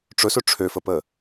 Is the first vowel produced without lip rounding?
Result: no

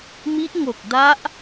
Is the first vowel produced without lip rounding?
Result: yes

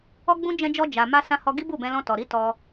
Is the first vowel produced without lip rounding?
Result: no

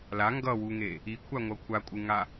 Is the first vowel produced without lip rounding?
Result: yes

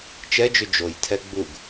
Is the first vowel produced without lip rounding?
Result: yes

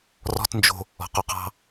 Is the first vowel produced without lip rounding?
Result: no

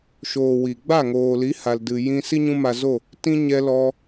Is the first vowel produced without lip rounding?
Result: no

